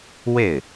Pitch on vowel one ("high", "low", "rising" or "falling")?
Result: falling